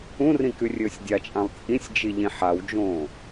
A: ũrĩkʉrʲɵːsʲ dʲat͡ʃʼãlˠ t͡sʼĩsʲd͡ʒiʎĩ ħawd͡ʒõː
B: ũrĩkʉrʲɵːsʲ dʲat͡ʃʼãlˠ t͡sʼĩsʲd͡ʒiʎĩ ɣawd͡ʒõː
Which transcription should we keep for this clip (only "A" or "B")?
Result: A